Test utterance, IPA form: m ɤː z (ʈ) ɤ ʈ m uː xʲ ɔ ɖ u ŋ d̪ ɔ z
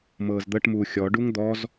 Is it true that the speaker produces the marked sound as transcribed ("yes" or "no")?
no